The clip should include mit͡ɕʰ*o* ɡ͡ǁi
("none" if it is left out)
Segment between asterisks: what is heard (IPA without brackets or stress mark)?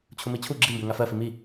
u